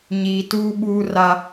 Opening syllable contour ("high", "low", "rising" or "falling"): low